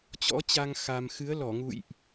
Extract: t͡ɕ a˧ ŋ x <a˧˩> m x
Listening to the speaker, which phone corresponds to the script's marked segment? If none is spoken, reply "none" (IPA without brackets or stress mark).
a˧